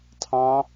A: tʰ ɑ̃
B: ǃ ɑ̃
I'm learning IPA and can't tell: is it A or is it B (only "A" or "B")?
A